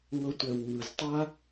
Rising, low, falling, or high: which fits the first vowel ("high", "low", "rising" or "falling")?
low